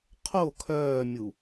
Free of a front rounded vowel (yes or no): no